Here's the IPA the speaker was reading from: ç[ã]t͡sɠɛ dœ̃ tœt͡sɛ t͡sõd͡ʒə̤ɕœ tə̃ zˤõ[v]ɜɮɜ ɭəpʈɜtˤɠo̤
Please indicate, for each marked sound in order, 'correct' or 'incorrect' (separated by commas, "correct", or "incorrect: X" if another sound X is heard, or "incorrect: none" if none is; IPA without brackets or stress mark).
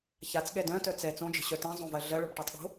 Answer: incorrect: a, correct